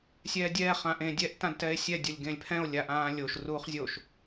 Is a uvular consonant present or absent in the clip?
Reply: present